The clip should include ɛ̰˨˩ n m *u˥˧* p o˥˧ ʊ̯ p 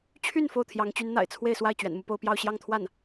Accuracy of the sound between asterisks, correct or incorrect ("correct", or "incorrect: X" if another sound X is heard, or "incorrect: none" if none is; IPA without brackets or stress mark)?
correct